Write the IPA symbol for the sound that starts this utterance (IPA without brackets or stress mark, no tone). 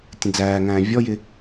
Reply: tʲ